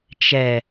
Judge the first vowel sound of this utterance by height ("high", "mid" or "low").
mid